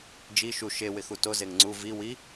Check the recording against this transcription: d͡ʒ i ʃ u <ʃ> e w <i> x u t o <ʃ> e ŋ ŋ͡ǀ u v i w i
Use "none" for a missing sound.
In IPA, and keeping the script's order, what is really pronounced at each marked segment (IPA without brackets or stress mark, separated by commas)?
ʃ, ɪ, z